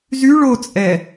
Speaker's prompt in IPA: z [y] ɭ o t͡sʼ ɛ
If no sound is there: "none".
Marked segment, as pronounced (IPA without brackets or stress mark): y